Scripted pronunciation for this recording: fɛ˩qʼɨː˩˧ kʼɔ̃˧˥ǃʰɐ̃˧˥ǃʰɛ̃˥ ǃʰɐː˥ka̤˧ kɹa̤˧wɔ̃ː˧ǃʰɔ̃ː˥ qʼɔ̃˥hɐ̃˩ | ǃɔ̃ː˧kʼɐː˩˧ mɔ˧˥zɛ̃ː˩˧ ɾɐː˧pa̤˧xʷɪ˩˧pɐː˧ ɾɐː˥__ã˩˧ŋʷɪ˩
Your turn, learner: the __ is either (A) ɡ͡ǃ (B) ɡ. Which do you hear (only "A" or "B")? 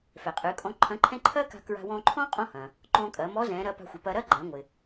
A